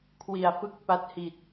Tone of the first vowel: low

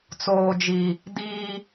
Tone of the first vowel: low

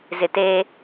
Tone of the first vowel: low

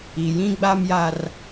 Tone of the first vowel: low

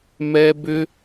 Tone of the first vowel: high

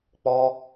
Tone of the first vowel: high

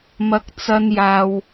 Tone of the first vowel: low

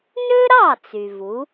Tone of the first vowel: high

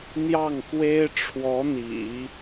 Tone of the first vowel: falling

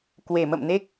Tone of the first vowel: low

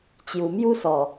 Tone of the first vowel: low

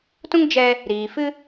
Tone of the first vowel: high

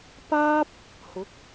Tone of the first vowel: high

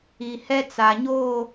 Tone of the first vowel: low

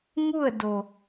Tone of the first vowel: falling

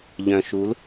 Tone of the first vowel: low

